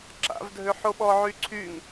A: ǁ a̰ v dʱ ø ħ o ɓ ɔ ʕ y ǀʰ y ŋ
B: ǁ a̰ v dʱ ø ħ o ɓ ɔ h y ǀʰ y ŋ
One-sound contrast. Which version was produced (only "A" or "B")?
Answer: A